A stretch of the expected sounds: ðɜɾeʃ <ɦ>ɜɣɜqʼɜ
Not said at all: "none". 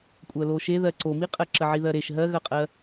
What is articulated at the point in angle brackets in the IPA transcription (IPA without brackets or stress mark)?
ɦ